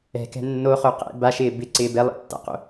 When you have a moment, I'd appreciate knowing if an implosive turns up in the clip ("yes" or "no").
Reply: no